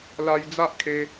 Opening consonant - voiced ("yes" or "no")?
yes